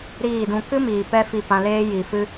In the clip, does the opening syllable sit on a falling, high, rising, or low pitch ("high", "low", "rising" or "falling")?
falling